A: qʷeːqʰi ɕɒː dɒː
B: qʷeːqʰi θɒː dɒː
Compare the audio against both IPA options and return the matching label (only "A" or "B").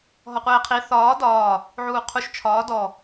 B